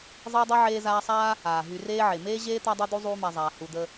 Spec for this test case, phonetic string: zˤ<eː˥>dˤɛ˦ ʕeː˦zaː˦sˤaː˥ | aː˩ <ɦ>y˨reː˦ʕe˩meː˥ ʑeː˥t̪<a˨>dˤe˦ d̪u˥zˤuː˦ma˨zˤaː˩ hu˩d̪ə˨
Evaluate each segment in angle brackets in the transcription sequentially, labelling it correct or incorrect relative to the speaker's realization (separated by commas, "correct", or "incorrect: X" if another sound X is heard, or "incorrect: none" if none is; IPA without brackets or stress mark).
incorrect: eː˦, correct, incorrect: a˦